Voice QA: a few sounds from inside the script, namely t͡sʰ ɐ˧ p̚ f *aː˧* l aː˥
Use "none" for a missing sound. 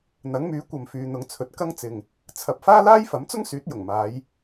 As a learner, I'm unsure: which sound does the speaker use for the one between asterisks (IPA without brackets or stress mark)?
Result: aː˥